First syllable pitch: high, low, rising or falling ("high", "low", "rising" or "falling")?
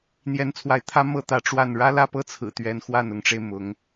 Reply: rising